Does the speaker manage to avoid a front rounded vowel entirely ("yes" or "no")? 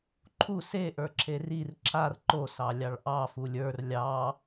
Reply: yes